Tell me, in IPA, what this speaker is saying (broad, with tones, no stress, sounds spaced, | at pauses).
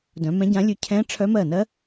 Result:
d œ̃˨˦ m ɛ̃˦˥ ɟ ã˦˥ lʲ ʉ˦˥ cʰ ɛ̃˦˥ ʈ͡ʂʰ œ˦˥ m ɜ˥˩ n ɜ˦˥